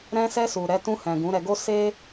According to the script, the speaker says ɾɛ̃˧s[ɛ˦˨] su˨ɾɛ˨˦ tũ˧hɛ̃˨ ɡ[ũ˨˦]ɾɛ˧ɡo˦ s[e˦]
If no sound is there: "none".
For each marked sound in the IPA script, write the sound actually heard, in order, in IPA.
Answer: ɛ˧, ũ˨˦, e˦

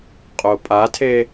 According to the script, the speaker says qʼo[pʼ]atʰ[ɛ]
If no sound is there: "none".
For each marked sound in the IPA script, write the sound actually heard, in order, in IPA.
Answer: pʼ, e

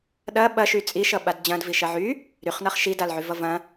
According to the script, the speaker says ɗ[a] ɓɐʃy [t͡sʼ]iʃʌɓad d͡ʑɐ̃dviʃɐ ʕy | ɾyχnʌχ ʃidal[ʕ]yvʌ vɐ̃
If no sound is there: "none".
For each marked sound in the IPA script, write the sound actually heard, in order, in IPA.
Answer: ɐ, t͡sʼ, ʕ

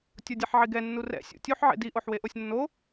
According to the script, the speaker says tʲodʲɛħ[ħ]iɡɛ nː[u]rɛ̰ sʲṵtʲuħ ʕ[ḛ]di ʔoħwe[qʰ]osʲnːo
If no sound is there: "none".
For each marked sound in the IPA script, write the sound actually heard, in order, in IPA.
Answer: ʕ, u, ḛ, ʔ

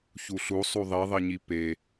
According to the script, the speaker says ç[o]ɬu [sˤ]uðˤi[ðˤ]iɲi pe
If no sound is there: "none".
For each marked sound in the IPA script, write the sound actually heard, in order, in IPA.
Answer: u, sˤ, ðˤ

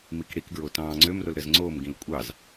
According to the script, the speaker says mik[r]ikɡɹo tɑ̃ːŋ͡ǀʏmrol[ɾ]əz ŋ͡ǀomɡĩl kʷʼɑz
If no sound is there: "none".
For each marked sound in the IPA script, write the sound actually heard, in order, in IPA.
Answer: ɽ, ɾ

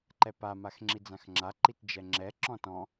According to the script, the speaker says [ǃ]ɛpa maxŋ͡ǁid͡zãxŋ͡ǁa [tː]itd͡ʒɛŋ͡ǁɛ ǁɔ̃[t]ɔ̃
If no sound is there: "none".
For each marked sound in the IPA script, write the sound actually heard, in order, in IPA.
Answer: ǃ, ǃ, t

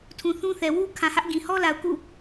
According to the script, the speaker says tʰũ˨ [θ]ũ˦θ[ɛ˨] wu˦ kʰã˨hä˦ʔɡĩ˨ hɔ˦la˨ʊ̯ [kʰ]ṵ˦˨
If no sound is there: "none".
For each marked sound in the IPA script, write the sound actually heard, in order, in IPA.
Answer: θ, ɛ˨, k

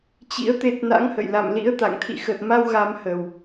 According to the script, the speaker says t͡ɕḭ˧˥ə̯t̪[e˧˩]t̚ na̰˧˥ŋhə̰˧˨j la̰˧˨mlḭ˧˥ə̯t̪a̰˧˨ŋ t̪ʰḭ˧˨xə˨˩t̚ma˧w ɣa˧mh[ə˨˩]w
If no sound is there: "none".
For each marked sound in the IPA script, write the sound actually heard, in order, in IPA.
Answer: e˦˥, ə˨˩

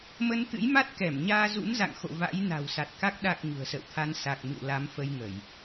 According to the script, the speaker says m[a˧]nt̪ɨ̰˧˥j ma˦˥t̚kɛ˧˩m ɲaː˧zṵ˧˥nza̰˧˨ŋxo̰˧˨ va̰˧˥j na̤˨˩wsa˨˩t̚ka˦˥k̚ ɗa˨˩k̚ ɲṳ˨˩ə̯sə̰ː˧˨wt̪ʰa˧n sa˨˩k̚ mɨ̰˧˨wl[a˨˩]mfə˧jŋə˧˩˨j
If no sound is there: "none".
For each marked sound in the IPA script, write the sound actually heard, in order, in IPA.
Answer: ə˧, a˨˦

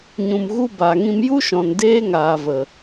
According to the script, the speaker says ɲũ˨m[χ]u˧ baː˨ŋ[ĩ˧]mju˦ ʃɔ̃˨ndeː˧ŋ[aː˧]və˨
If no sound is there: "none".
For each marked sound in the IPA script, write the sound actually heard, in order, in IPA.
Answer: ɣ, ĩ˧, aː˨

